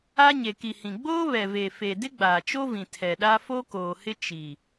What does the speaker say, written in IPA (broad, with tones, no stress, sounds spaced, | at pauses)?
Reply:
a˦ ɲ e˨ k i˨ h ĩ˨ ɡ͡b oː˦ β ɛ˨ v e˨ f e˨ d ɪ˦ ɡ͡b aː˨ t͡ʃ o˦ v ĩ˨ tʰ ɛ˨ ɗ a˦ f o˦ k oː˨ h ɪ˦ t͡ʃ i˨